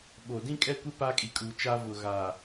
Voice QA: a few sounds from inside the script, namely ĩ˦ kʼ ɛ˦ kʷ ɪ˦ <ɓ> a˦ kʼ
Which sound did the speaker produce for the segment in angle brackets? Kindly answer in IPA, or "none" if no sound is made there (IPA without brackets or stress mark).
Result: p